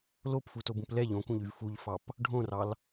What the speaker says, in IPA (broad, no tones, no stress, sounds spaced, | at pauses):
l o p f u t o b ũ p l ɛ ʎ õ k ũ ʎ y v f u ʎ f ɑ p | ɖʱ õ r ɑ l